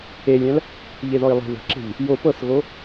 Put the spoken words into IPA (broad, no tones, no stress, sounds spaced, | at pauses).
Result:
e lʲ æ̃ l | ʎ e ð ɔ i̯ lˠ e̤ ð ə̤ ǁ e̤ ʎ | j o p ɤ s ɣ o